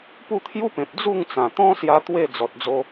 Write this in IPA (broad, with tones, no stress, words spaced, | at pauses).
pu˥˧t̪ʰju˦pẽ˨p̚ d͡zu˥˧ŋt͡sã˨˩ t̪ɔ̃˦ sja˦t̪we˥˧ d͡zɔ˨t̚d͡zo˧